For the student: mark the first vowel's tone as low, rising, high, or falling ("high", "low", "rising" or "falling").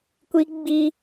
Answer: high